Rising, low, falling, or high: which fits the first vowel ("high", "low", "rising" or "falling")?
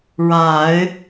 low